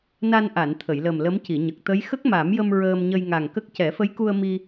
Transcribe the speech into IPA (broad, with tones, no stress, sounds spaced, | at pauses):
n a˧ n ʔ a˨˩˨ n t̪ʰ ə˨˩˨ j l ə˨˩ m l ə˧˥ m c i˨˩˨ ɲ ə˨˩ k̚ t̪ ə˧˥ j x ə˦˥ k̚ m a˨˩˦ m j ə˧ m ɹ əː˧ m ɲ ə˧ j ŋ a˨˩ ŋ k ə˦˥ k̚ c ɛ˨˩˦ f ə˧˥ j k u˧ ə̯ m i˧